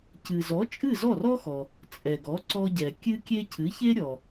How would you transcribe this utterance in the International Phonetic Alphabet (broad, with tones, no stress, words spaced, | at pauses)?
cɨ˩zɔ˩˥ t͡ʃʼɨ˥˩zɔ˥˩rɔ˥xɔ˩ | t͡sʼɛ˩ɡɔ˩˥ǀɔ˧ɟɛ˩ kʲɨ˥kʲe˥ cʰɨ˩˥çe˥ɾʲɔ˩